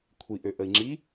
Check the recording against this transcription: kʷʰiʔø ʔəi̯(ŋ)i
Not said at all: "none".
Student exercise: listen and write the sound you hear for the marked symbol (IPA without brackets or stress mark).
ŋ͡ǁ